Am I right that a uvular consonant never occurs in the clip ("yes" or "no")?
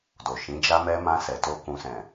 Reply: yes